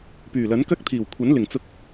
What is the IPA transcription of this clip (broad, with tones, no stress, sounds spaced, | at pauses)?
p yː˨˩ l ɐ˨˥ n k ɐ˥ k̚ t̪ʰ iː˨˩ w kʷʰ ɐ˨˥ n l ɪ˨˩ ŋ t͡s ʊ˧ k̚